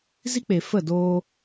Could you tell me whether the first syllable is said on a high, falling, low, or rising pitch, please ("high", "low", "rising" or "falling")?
high